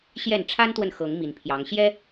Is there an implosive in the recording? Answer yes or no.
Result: no